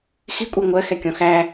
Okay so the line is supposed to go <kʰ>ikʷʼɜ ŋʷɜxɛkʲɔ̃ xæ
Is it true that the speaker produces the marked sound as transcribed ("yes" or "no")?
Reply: no